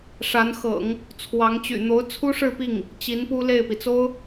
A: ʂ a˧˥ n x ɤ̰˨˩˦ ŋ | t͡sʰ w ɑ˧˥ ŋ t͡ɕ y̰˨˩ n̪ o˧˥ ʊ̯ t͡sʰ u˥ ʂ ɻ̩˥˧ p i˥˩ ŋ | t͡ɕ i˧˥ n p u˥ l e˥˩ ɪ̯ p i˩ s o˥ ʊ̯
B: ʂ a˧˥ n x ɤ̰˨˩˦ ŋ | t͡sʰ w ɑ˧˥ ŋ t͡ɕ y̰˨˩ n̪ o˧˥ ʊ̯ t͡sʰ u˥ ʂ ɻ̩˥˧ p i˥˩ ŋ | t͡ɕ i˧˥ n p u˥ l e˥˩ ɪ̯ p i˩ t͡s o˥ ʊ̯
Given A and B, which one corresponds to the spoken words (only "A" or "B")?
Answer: B